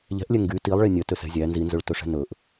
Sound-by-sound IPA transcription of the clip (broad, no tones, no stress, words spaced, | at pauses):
ʎɛ̤ʔlʲɛ ŋɡy tilˠɭe nʲœtøsɛ̤ zʲæ nzinzɵɭtɵʂɛ̤ nɵʔ